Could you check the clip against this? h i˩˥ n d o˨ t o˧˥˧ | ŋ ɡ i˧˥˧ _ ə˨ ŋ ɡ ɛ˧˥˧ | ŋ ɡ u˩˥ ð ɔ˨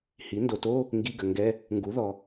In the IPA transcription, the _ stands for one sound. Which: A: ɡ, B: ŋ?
A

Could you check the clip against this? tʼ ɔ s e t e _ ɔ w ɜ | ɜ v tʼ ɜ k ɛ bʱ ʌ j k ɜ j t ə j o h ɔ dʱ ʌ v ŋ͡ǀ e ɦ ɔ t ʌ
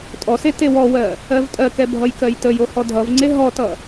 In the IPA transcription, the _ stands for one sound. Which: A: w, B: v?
A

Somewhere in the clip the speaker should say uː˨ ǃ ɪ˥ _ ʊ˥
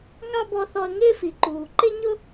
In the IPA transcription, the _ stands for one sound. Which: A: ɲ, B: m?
A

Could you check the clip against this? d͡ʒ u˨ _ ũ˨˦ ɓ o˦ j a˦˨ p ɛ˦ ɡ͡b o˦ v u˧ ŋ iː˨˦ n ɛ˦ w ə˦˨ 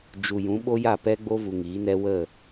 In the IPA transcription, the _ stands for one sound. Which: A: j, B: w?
A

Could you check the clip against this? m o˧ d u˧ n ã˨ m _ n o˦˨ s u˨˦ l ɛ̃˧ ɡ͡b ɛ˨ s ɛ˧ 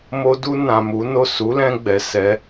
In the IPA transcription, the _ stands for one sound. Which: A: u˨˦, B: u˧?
A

